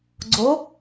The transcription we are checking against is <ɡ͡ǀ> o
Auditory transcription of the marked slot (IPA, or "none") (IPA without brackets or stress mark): ɡ͡ǀ